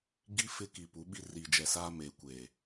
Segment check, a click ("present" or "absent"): absent